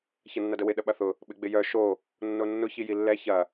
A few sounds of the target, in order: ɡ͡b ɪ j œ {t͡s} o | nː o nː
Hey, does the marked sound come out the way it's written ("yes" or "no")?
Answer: no